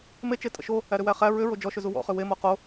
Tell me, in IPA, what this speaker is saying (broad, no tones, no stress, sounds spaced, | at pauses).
m e t͡ʃ e tʼ ə̰ ʃ o | æ ɾ ʏ w æ χ æ ɹ ʏ ɹ o d͡ʒ ɔ ʃ ʏ z u w ɔ̰ χ ʏ w e m o q o